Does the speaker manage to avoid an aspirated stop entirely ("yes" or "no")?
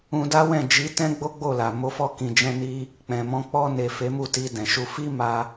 yes